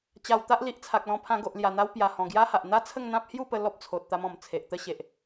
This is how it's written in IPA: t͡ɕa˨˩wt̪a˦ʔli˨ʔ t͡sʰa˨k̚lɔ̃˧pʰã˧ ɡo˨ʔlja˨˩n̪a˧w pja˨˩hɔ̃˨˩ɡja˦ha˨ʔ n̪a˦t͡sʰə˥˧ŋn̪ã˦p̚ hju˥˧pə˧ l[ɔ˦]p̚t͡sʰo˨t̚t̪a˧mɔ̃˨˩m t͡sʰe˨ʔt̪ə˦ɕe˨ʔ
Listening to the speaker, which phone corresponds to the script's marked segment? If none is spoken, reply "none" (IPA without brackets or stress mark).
ɔ˦